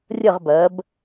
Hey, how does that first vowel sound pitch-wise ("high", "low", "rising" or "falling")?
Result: falling